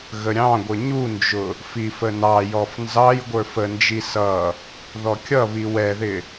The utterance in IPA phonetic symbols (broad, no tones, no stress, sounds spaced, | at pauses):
ɣ ə ɾʲ ɑ̃ ɡʷ ə ɲ u n d͡ʒ ʊ | f i f ə n ɑ j ɔ f n z ɑ j ɡʷ ə˞ f ə n d͡ʒ i s ʌ | ð ɔ kʲ ʌ β i w ɛ ð ɪ